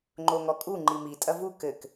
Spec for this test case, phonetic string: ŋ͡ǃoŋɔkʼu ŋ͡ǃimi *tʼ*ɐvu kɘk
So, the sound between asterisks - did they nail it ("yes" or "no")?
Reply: yes